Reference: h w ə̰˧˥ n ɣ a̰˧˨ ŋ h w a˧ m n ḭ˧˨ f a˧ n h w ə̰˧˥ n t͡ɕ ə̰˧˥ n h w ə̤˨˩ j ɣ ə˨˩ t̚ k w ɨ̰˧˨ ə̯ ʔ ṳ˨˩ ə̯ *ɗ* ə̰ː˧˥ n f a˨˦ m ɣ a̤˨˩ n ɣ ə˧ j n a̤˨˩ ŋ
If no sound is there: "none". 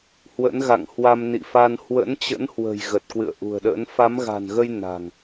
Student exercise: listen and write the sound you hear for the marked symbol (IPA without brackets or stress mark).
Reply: ɗ